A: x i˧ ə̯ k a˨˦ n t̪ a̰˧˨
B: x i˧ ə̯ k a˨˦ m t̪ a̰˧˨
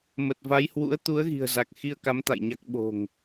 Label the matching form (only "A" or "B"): B